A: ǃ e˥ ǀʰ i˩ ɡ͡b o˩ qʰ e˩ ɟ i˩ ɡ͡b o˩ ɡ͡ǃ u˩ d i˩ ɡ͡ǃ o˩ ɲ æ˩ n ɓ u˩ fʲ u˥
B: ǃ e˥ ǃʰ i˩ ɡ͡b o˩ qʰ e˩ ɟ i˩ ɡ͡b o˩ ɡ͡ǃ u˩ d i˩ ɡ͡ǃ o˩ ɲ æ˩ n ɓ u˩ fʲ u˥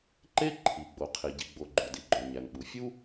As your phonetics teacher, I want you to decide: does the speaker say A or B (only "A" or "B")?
B